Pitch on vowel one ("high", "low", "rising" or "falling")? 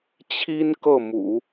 high